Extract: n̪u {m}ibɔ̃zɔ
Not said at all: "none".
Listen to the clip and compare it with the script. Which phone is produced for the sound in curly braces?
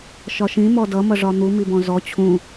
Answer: m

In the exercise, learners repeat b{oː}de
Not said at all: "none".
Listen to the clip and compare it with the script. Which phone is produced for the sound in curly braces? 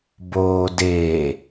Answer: oː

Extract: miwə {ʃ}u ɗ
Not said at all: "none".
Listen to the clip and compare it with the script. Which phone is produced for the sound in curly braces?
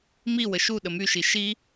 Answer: ʃ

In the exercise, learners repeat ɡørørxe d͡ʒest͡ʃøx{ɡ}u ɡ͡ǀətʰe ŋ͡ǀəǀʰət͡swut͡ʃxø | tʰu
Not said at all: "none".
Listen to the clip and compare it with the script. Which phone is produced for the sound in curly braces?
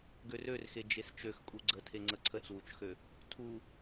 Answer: kʼ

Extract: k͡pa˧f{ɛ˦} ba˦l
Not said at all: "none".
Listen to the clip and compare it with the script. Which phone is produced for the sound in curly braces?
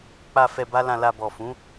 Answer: ɛ˧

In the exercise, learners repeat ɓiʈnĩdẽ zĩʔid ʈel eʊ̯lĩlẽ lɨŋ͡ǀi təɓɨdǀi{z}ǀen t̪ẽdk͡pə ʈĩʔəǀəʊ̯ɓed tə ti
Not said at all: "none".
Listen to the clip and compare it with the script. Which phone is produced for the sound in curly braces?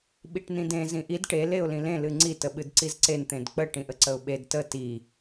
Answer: z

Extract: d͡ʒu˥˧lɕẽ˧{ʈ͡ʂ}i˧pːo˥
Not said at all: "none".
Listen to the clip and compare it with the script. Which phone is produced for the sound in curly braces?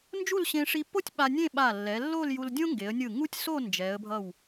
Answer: ʂ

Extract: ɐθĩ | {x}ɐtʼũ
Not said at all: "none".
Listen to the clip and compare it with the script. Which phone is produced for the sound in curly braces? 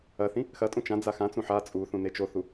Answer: x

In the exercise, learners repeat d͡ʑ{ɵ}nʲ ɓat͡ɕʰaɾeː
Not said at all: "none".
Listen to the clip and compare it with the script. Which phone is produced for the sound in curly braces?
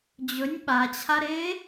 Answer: ɵ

